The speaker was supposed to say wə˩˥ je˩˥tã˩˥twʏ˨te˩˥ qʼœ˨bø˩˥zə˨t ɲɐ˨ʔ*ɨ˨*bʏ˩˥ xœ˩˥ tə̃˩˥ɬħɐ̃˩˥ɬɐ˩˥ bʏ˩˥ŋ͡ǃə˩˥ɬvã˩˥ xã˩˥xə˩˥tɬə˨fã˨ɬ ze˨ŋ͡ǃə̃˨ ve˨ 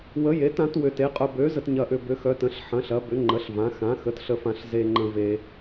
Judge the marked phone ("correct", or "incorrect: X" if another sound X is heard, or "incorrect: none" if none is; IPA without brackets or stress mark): incorrect: ʏ˨